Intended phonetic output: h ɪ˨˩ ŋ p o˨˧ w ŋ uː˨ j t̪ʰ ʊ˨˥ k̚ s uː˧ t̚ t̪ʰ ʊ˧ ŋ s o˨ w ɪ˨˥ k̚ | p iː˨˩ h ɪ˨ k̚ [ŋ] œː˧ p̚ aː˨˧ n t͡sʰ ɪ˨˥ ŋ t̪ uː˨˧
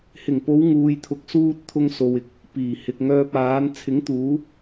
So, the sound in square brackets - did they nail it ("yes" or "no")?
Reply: yes